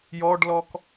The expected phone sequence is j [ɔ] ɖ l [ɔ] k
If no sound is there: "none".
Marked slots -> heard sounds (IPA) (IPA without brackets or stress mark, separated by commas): ɔ, ɔ